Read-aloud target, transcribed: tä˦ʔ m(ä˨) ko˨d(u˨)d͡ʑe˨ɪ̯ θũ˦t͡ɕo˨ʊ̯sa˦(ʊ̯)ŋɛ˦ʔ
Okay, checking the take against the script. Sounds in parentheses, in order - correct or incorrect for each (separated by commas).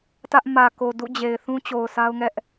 correct, incorrect, correct